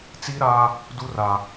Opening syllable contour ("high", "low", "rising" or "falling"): high